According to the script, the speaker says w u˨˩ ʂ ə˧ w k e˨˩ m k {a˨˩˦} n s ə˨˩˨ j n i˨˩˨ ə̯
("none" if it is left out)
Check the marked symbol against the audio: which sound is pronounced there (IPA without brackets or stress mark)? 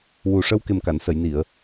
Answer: a˨˩˨